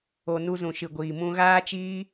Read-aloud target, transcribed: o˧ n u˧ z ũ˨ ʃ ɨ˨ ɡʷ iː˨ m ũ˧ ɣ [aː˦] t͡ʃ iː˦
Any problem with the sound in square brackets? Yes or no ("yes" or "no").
no